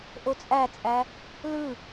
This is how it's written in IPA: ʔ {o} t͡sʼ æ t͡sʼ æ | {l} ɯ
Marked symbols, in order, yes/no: yes, yes

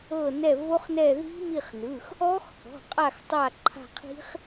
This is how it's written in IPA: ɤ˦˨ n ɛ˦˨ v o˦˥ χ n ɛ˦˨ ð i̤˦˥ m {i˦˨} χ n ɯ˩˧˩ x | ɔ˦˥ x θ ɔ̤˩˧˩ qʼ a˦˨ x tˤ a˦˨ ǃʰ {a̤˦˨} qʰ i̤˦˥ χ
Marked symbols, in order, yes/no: yes, yes

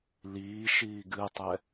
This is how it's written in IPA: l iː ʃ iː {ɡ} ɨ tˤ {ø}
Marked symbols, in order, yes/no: yes, no

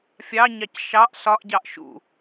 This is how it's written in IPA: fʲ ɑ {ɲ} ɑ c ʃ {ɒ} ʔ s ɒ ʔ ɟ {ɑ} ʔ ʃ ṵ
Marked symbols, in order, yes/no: yes, no, yes

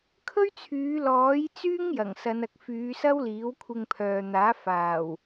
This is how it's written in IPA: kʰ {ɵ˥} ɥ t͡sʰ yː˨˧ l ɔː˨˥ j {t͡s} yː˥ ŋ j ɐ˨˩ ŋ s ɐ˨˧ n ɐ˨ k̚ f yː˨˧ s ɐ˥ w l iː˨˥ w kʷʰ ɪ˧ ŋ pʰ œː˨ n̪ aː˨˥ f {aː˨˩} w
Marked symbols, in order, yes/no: yes, yes, yes

